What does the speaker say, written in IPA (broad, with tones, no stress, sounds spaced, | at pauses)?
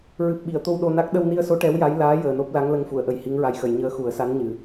ɹ ɨ˨˩ p̚ ɓ i˨˩˨ ə̯ t̪ o˧ w ɗ o˧ n a˦˥ k̚ ɗ ə˧ w n i˧ ə̯ s o˧˥ ʈ ɛ˧˥ w j a˧˥ j l aː˧˥ j əː˨˩ n o˦˥ p̚ l a˧˥ ŋ l ə˧ ŋ f u˨˩˨ ə̯ ʔ ə˨˩ j h i˧˥ ŋ ɹ a˧˥ j x ə˨˩˨ j ɲ əː˧˥ x u˨˩˦ ə̯ s a˧˥ n ɲ ɨ˨˩